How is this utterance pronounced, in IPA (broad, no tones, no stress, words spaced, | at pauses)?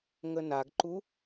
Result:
ŋənaɡǃu